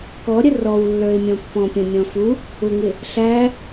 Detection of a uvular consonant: absent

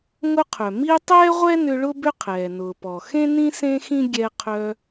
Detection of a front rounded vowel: present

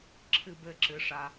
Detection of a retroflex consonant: present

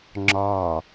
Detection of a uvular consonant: absent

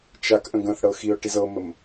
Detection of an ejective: absent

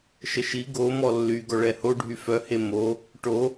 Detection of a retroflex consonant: present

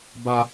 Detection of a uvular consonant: absent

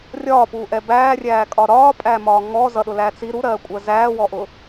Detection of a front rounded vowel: absent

